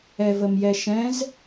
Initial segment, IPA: ɛ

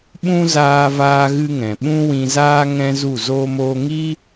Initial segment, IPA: ɓ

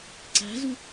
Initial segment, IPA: ǀ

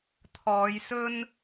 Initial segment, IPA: t̪ʰ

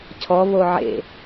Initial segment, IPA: cʰ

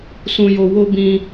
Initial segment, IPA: s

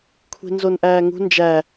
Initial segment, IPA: kʷʰ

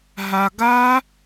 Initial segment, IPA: ɦ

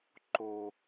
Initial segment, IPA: ǃ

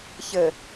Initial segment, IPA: ç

